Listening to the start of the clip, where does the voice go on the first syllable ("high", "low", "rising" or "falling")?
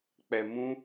low